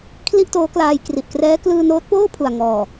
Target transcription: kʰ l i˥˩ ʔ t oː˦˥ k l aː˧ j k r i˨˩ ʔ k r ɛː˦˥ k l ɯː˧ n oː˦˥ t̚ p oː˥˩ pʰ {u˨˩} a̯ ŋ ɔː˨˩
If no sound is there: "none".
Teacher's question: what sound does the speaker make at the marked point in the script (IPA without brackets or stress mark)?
u˨˩